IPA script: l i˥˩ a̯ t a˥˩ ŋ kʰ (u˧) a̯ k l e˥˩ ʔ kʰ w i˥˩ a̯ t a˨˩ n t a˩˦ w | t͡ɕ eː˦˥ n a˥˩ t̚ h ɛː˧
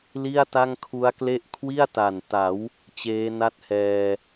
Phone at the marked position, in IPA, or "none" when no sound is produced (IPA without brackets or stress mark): u˦˥